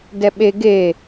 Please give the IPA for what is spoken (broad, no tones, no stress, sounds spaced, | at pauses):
d ɛ ɓ e ɡ e